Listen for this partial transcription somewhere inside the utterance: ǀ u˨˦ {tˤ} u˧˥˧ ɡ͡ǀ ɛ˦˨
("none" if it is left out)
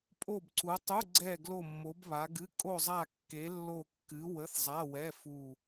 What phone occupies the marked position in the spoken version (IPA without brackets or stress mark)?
tˤ